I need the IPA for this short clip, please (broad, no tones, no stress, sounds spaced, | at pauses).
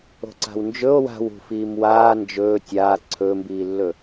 o̤ ǀ a̤ w n d͡ʒ ɵ o̯ w a̤ w ṳ f iː m w aː n d͡ʒ ɵː tʲ aː ǀʰ ɵː m b iː lː ɵ